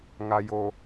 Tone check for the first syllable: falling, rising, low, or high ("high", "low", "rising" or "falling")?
low